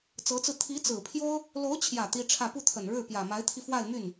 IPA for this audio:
t͡sɤ˧˥t͡sɹ̩˧ t̪ʰi˧˥ t͡sɹ̩˨˩pʰjo˥ʊ̯ | lo˧˥ʊ̯t͡ɕʰjä˨˩ t̪i˥ʈ͡ʂʰä˥˧ pu˥˩t̪ʰə˨˩n ɻɻ̩˥˩ pjä˨˩ma˧˥ɪ̯t̪ʰi˧ fwa˥˧ɪ̯my˥˩n

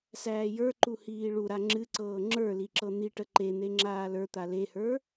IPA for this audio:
sæːjə˞ǃu hiːɭuɾa ŋ͡ǁɨǀɤː ŋ͡ǁə˞li ǁɤn̪iʈə ǃen̪e ŋ͡ǁaːlə˞t̪a lehə˞

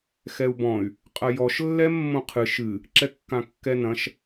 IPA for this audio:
xɛu̯bɔ̃y̯ | qʼɐjɔʃ lːɛmːõqʰɨ ʃɨ | ǁɛkːãkːɛnɐ̃ʃ

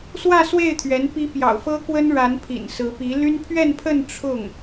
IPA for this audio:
swä˥˧swe˥˩ɪ̯ t̪ʰɥɛ˧˥n pi˧˥ pjɑ̰˨˩ʊ̯fɤ˥kwə˥n ɻa˧˥npʰḭ˨˩n sɹ̩˧˥pi˧˥ ly˥n pʰɥɛ˥˧npʰə˥˧n ʈ͡ʂʰʊ˥˩ŋ

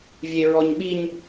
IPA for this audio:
vʲeɹɔɲɓiɲ

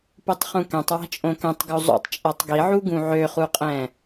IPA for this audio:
putˤχũkɛ̃tˤ wæ̤t͡ʃʼõkɛ̃tˤ ɡuzˤṵtˤ t͡ʃʼætˤɡiʕu ɡũʕøχuqʼɛ̃

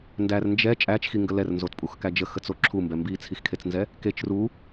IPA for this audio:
ndær nd͡ʒɛ t͡ʃʼæt͡ʃxiŋɡə lɛrnzotpʼuxkæ d͡ʒəxət͡so ǁʰumbɛ mbit͡sʰixkʰet͡snzɛ | ket͡ʃ ru

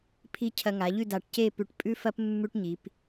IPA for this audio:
pʰi˥ cʰɐ˧ŋa˩˧ʎʉ˥˧ da˧˩ʈ ce˥˧pʉ˧˩ʈ pʼʉ˥fɐ˥p mːʉ˥ʈɲi˩˧p

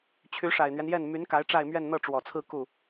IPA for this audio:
t͡ɕʰy˧˥ʂa˨˩ɪ̯n̪ɥɛ˦njɛ˥˩n my˧˥n ka˧˥ɪ̯ʈ͡ʂa˥˧ɪ̯ mɥɛ˥˧nn̪ɤ˥˩ʈ͡ʂwɔ˨˩t͡sʰɹ̩˥˧ ku˥˩

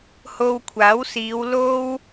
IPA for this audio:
ho˧wkʷʰaː˨˥wsiː˨˧w lo˥w

